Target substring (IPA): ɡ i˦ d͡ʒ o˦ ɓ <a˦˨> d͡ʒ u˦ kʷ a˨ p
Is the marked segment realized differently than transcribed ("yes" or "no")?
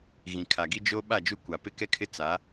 no